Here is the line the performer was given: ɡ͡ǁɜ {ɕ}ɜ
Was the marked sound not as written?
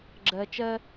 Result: yes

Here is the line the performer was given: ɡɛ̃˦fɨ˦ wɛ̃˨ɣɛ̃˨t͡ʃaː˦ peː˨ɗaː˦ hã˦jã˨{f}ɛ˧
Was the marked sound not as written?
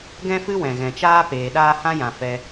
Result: no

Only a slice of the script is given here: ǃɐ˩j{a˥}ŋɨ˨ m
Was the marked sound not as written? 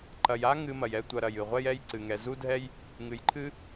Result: no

